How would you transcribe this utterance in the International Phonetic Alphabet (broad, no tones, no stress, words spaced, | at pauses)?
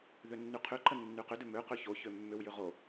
ðʏnːyqʰʏǃə nːyqʏdʏ mø qøçoçø mːʏwjʏ ʁo